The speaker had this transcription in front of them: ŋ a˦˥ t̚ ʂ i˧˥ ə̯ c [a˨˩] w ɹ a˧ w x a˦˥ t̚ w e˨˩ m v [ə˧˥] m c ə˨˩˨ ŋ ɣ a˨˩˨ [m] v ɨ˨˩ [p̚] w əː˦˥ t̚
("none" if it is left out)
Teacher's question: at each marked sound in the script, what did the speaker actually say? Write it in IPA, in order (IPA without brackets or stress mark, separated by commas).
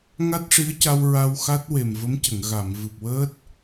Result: a˧, ə˧˥, m, p̚